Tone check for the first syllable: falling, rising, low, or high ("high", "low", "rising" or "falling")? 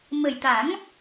low